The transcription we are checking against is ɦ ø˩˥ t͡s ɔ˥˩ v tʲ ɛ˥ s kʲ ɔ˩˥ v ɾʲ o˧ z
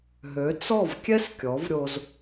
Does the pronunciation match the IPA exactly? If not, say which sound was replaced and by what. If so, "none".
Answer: tʲ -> kʲ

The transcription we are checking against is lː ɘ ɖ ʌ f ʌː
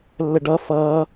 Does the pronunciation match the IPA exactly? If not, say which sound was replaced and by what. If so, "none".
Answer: none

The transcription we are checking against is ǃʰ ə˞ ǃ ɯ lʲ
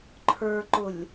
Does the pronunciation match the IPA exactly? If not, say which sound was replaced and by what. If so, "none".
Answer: ɯ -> ʊ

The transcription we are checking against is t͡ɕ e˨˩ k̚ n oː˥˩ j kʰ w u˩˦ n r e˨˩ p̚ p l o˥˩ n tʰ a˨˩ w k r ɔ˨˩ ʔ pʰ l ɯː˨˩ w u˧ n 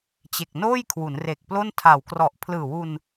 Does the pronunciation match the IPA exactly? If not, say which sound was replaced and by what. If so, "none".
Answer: p̚ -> k̚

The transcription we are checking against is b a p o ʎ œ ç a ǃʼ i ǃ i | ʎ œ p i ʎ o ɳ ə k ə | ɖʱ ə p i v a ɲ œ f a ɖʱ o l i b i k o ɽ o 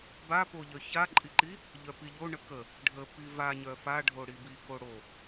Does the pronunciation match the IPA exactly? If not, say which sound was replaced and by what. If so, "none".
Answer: l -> ɽ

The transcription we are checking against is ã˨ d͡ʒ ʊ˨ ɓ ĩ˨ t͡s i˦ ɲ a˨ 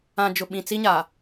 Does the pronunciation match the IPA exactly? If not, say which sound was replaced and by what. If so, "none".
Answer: none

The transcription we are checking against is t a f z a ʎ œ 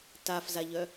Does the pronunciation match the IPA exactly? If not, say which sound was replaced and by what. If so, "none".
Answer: none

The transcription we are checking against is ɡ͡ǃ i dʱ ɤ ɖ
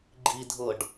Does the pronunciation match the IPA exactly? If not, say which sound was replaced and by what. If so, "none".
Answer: none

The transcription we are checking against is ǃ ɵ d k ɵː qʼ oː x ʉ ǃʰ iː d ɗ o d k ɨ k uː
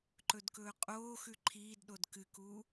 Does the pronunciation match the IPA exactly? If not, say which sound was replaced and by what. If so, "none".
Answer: none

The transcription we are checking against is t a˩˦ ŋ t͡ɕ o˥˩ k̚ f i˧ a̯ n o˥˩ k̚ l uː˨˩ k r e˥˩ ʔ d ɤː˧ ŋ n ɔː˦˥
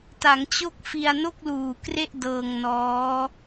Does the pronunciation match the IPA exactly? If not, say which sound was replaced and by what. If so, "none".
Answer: none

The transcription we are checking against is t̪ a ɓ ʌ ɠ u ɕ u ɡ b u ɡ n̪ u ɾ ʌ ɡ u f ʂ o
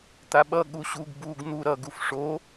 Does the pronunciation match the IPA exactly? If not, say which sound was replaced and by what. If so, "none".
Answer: none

